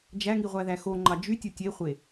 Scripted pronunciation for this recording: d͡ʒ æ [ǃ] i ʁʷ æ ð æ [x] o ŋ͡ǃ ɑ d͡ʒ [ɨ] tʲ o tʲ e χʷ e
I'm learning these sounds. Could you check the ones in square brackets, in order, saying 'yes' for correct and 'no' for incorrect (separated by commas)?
no, yes, no